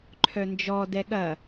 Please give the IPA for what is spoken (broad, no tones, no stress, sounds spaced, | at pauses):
ǃʰ œ n d͡ʒ ɔ d ɛ ɠ ɐ